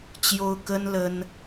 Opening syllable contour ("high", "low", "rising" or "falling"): high